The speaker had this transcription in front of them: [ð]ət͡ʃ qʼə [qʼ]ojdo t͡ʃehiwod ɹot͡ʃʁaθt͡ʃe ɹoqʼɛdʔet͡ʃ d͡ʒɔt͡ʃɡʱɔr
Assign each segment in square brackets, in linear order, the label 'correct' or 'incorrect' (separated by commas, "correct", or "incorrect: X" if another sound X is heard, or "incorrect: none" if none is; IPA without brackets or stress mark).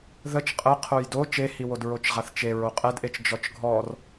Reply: correct, incorrect: qʰ